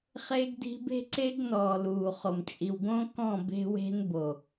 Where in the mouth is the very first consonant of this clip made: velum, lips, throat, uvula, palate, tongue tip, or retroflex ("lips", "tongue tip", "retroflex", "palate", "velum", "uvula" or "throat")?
uvula